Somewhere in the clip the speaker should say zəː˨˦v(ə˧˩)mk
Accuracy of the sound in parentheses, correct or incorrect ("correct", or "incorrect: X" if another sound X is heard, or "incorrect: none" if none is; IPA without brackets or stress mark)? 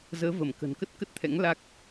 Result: correct